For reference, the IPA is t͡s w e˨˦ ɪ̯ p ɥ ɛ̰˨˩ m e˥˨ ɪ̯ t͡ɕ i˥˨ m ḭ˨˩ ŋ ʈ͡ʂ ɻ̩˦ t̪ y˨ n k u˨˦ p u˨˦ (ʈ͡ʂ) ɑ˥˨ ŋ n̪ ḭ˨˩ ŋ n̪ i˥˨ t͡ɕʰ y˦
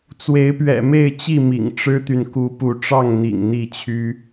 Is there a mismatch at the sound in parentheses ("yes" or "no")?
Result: no